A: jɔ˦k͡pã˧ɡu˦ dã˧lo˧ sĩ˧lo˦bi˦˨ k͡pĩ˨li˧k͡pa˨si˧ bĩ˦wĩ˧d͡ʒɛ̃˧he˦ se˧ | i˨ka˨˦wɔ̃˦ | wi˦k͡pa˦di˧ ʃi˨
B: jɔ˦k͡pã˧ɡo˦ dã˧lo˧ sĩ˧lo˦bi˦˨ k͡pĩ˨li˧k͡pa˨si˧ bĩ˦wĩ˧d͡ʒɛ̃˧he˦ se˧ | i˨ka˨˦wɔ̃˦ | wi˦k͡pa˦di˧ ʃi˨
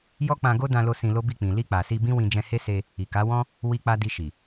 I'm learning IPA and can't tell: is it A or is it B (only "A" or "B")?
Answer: B